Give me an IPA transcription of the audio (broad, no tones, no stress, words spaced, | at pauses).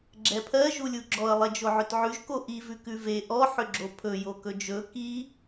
ɡ͡ǁɛpʰɜ ʒulʲuɡ͡ǁɔə̯ lˠed͡ʒoʕʏtʕʉʒ koʔi vʉkʉve ʔɔ ħʏɡ͡ǁopʰɵ jokɵd͡ʒɵ ki